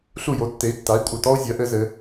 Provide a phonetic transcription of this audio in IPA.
ɬ u˥˩ j o˩˥ tː e˩˥ i̯ tː a˩˥ i̯ kʷʼ ɘ˩ t ɔ˥ u̯ zʲ ɐ˩˥ ʔ ɘ˥ z ɘ˩˥

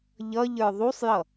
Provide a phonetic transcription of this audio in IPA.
ʎ ʌ ʎ ə˞ ðˤ u sˤ j ʌ

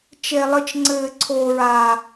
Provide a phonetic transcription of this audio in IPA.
t͡ʃ e˨ lˠ ɨ˨ t͡ʃ ŋ͡ǀ ɘː˨ ǀʰ oː˨ ɹ aː˨

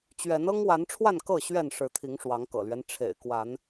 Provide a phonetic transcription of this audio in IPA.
t͡ɕ ɥ ɛ˨˦ n ɤ˦ ŋ w a˨˦ n ʈ͡ʂʰ w a˥˨ n k ɤ˥˨ ɕ ɥ ɛ˥˨ n ʂ ɻ̩˨˦ t̪ʰ i˨˦ ŋ ʂ w ɑ˨˦ ŋ k ɤ̰˨˩ l ɥ ɛ˦ n ʈ͡ʂʰ ḛ˨˩ ɪ̯ k w a˨˦ n

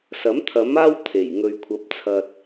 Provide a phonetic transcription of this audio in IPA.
s ɐ˨˥ m t̪ʰ ɐ˨˥ m aː˥ w t̪ʰ e˨˩ j ŋ ɵ˨ ɥ kʷʰ ɐ˨˥ p̚ t͡sʰ ɐ˨ t̚

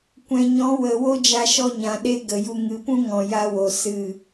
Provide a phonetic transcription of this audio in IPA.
kʷ ɛ̃˨ ɲ ɔ̃˨˦ w ə˨ w o˦ d͡ʒ a˧ ʃ ɔ˦ ɲ ã˨ ɗ e˦ ɡ ə˨ j u˧ ŋ ɨ˨ p ũ˦ ŋ ɔ̃˨ j a˧ w o˨ s ɨ˦˨

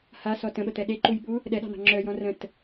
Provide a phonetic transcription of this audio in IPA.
h a s ɔ t ə̃ ɓ ə t̪ ɛ ɗ e ǃ u j ɓ u | ɗ ɛ ɗ ɑ̤ n̪ ɑ̤ ŋ͡ǁ œ j ɔ̃ r ə̃ t

